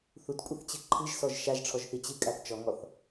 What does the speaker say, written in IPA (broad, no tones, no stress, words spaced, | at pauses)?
θutkʷʼɨθt͡ɕɨ ǃʰɨʒsɔʒ ʃaʒʈ͡ʂʰɔʒθi t͡ɕɨkʼaθ t͡ʃɔŋɔθ